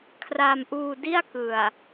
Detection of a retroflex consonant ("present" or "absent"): absent